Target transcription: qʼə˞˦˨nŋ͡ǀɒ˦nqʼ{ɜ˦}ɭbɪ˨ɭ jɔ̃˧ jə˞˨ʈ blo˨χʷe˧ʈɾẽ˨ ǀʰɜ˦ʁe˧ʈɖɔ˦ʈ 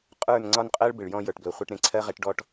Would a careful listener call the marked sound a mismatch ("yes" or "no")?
no